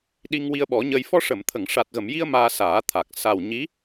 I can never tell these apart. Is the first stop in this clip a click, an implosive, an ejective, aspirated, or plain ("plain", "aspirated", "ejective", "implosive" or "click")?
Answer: implosive